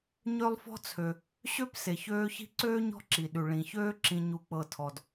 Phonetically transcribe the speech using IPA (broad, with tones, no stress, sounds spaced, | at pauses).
ɲ ø˥ lˠ f ɔ̤˥ t͡sʰ ø˩ | ɕ ø˦ p s e˩ ç øː˦ ç i̤˥ ǀ øː˥ ɲ ɔ̤˦ ǁ i˩ ɗ ʉ˩ ɭ ĩ˩ ç øː˦ ǁ ĩ˨ ɲ u˨ k͡p ɤ˨ tʰ ɔ˩ d